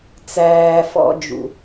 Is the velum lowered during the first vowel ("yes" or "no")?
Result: no